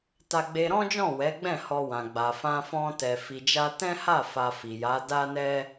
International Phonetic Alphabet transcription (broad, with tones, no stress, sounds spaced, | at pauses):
t a˧ ɡ͡b e˧ ɾ ɔ̃˦ d͡ʒ ɔ̃˦˨ w ɛ˨˦ ɡ͡b ɛ̃˦˨ h ɔ˧ w ã˨ ɡ͡b a˨ f ã˧ f ɔ̃˧ t ɛ˨ f i˨ d͡ʒ a˧ t ɛ̃˦ h a˦˨ f a˧ f i˨ j a˨˦ d a˦ n ɛ˦